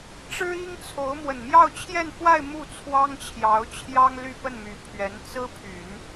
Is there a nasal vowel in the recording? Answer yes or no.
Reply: no